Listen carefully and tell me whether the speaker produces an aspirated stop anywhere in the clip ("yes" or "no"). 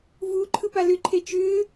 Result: yes